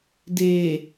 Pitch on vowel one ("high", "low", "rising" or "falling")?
low